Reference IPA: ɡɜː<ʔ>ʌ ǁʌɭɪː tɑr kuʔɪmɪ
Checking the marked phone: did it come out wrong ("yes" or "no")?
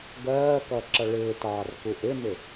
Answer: yes